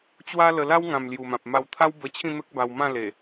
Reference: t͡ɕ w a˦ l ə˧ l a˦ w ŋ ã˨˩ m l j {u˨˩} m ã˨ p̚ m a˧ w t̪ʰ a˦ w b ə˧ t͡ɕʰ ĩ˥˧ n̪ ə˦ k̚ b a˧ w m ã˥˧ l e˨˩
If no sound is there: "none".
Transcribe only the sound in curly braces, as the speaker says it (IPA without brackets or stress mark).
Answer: u˨˩